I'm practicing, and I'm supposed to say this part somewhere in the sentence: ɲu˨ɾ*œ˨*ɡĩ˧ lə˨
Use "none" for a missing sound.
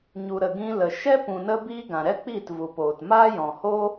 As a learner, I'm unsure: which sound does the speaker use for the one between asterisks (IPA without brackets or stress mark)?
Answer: ə˨